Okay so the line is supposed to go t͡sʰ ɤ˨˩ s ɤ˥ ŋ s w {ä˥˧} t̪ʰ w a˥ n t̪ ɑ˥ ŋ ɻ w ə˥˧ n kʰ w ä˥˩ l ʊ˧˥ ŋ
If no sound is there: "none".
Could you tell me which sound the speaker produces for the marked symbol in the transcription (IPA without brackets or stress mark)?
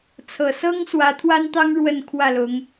ä˧˥